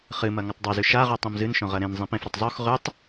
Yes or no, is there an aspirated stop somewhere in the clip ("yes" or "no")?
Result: no